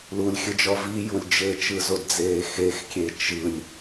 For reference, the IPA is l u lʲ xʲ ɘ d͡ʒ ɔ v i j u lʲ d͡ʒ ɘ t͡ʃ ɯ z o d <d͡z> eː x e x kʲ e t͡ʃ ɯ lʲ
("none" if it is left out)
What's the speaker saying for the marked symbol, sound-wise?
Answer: d͡z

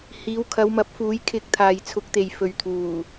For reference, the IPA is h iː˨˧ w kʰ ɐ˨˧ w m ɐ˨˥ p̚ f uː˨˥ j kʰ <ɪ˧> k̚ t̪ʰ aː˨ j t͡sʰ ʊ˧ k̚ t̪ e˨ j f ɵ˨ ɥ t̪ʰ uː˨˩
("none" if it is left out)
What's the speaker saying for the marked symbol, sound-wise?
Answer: ɪ˧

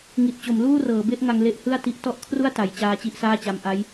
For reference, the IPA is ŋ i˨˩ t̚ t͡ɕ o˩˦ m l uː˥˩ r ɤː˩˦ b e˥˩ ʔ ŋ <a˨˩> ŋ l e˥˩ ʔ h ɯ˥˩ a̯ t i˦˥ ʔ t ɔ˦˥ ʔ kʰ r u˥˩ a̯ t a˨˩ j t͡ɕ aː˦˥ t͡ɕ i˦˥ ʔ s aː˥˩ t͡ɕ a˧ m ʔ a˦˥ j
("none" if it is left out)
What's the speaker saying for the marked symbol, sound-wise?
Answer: a˧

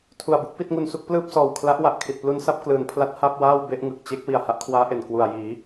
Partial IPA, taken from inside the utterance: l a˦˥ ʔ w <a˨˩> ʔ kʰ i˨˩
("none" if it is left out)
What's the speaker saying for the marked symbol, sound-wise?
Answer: a˨˩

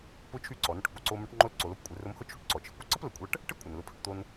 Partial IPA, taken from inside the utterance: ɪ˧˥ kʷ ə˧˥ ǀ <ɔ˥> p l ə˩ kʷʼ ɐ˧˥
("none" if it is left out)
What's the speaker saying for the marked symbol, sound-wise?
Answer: ə˥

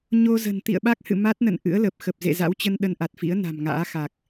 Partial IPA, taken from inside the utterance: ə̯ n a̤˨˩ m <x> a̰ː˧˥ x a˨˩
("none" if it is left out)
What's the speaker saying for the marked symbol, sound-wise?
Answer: ŋ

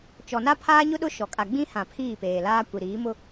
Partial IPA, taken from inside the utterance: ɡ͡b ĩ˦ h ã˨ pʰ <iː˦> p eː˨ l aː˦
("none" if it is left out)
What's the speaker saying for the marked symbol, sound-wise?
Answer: iː˦˨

